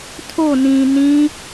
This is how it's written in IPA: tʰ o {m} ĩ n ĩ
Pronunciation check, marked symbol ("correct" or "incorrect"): incorrect